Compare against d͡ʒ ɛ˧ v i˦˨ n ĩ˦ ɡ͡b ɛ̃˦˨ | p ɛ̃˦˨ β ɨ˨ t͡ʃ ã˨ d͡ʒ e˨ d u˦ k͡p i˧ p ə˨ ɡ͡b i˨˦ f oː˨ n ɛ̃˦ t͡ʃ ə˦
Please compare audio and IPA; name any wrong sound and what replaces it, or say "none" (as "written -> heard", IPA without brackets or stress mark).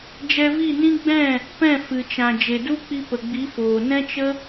β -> f